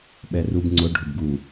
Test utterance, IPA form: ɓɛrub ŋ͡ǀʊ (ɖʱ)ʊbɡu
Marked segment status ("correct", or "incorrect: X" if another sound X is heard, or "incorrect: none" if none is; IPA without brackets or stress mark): correct